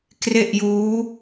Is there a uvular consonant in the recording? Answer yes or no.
no